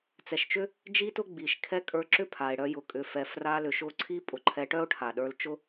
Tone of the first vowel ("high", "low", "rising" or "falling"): low